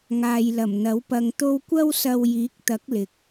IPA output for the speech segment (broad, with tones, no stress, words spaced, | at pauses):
ŋaː˨jlɐ˨˩m n̪ɐ˨˥wpɐ˧ŋt̪o˥w kʷɐ˥wsɐ˧w jiː˨˥k̚t̪ɐ˨˥k̚ lɪ˨k̚